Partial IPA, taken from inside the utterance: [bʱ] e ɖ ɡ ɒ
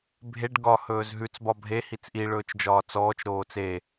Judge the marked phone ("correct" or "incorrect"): correct